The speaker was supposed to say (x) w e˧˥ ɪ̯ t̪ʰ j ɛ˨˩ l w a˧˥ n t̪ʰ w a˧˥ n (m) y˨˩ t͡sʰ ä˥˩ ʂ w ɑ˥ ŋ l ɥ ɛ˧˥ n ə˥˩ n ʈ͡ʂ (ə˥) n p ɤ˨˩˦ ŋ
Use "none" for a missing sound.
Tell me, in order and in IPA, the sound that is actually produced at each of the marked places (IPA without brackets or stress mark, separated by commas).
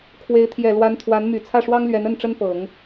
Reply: kʰ, m, ə˥